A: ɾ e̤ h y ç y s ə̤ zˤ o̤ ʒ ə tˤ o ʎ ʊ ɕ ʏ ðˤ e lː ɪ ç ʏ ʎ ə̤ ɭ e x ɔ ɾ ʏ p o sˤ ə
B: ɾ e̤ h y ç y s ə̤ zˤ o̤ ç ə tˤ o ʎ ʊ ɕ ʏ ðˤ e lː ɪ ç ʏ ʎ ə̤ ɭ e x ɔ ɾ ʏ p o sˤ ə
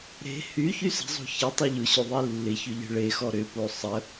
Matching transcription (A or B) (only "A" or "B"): B